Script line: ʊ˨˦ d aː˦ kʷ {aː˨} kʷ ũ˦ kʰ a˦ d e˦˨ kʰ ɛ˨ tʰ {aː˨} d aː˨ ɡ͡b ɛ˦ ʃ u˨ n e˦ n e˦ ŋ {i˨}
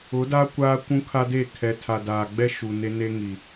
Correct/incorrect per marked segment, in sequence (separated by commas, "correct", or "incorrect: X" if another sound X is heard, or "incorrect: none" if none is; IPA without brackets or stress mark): incorrect: aː˦, incorrect: a˨, correct